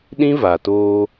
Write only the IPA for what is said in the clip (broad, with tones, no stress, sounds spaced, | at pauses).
ɗ ĩ˦ v a˨ t oː˦